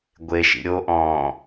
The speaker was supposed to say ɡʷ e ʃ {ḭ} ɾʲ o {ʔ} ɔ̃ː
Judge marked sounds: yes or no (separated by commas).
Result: yes, yes